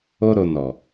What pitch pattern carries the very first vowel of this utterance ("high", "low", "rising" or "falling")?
high